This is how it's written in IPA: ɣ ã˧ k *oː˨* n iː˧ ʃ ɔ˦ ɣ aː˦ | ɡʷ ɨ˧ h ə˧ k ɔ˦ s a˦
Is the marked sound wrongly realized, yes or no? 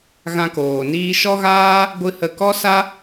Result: no